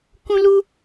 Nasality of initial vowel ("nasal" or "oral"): nasal